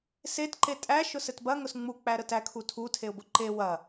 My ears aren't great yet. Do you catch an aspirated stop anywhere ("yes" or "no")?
yes